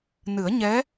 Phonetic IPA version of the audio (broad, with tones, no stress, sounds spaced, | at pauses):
n ɨ˨˩˦ ə̯ ɲ ɛ˧˥